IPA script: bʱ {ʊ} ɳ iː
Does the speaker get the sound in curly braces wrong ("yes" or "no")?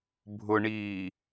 no